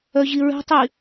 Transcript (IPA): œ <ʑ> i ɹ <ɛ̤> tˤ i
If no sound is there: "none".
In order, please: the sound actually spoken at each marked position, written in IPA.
ʑ, ɛ̤

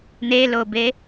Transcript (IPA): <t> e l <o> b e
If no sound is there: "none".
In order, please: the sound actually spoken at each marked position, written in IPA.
n̪, o

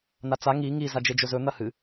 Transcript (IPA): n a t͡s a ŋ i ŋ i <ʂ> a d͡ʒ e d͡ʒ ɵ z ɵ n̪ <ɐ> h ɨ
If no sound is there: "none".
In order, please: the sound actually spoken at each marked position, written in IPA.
z, ɐ

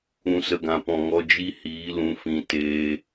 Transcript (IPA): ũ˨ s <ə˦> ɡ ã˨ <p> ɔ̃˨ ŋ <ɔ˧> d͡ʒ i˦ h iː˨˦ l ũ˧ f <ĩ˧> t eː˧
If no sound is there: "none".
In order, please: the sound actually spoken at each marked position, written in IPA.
ə˨, p, ɔ˧, ĩ˧

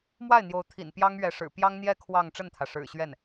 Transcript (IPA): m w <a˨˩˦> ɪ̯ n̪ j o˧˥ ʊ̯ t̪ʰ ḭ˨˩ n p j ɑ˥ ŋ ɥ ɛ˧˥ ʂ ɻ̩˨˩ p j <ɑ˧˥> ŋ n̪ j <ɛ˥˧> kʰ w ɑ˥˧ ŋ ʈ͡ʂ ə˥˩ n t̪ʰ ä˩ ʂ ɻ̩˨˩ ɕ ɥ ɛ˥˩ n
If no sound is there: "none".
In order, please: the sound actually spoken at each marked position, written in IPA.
a˥˩, ɑ˥, ɛ˥˧

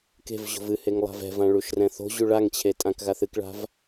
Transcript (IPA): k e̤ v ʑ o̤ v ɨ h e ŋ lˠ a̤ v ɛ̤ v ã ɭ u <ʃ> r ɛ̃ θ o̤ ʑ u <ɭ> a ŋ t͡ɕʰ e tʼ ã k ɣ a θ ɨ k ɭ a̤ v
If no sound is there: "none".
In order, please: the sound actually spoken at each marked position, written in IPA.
ʃ, ɭ

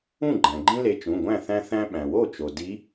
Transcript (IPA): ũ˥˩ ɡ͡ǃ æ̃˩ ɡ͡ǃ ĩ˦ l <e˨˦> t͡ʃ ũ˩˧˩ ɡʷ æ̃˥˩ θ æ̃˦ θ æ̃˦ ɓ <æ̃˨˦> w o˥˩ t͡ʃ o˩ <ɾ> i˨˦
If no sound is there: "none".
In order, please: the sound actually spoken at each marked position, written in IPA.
e˨˦, æ̃˩, d

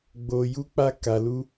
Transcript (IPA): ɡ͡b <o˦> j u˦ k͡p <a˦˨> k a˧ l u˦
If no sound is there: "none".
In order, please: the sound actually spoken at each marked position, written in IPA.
o˦, a˦

